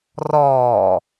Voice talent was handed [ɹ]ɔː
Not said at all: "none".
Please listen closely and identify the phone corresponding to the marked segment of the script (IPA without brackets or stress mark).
r